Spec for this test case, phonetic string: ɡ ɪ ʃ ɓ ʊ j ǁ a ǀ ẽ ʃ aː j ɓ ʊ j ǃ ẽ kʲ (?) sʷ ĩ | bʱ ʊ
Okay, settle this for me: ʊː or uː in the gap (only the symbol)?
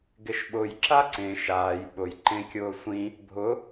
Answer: ʊː